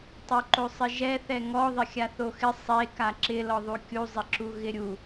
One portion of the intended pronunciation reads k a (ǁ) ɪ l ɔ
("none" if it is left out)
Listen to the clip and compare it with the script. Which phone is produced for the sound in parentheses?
ǁ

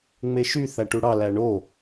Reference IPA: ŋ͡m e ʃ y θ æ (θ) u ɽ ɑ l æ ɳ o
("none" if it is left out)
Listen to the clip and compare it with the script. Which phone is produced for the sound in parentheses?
ʈ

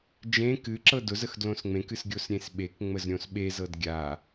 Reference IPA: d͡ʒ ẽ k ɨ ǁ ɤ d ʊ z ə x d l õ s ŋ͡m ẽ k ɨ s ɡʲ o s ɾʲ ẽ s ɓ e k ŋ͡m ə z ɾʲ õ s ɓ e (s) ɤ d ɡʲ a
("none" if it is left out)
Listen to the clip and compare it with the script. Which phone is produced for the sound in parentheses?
z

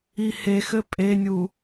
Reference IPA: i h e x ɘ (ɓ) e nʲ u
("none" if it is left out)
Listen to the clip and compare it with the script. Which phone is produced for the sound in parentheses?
pʼ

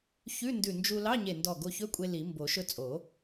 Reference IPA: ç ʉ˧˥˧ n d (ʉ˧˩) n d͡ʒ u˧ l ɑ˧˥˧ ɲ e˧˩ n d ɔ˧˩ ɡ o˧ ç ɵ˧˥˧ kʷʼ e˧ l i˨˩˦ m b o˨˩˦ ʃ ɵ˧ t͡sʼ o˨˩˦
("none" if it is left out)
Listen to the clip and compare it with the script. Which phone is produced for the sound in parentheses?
ʉ˧˩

